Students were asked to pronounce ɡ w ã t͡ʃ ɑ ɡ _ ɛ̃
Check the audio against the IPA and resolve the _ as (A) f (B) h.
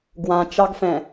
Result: A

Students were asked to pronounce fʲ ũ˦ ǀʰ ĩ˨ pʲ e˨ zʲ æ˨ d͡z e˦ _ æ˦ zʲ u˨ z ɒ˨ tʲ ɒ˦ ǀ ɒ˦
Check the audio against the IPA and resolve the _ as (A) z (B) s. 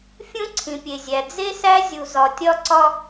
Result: B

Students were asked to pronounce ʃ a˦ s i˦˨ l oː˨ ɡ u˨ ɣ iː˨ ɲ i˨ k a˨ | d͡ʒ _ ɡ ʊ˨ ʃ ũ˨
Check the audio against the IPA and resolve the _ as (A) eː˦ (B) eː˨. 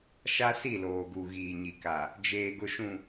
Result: B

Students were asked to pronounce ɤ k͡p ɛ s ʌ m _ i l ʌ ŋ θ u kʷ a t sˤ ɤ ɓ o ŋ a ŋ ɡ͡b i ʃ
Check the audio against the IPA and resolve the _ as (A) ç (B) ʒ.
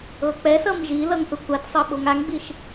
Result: B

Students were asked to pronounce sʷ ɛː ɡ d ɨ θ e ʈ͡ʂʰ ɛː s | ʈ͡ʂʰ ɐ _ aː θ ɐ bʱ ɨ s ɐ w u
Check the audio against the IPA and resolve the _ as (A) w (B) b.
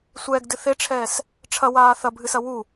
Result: A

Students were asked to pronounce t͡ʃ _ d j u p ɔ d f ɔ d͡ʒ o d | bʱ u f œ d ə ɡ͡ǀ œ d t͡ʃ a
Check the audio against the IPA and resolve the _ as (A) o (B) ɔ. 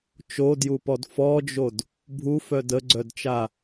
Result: A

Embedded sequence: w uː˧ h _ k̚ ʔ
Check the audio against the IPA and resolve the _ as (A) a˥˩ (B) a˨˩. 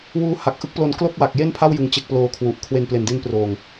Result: B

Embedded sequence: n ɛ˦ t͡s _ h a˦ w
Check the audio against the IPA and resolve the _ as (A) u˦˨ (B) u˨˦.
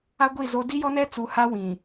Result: B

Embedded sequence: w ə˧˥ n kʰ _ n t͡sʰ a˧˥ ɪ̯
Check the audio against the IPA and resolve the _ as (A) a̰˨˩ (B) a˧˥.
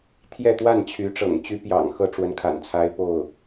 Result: A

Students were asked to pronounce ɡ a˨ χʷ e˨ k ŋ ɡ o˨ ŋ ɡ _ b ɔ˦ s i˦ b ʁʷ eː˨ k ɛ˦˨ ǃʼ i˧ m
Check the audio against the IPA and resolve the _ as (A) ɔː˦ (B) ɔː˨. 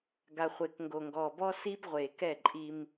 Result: B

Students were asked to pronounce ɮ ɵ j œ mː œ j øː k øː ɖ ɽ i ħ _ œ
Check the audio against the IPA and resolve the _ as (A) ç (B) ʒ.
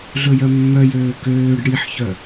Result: A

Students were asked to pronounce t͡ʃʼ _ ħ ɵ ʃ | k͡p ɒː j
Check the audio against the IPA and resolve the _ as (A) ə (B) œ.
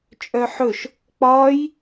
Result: B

